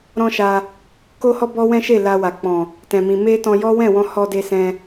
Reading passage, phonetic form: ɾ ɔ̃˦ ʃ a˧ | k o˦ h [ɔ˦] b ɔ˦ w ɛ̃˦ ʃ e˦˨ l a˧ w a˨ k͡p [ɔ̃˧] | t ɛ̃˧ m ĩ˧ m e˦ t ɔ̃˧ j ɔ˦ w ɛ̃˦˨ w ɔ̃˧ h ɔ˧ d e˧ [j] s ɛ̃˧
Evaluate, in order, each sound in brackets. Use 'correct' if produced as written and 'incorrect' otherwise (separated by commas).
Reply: correct, incorrect, incorrect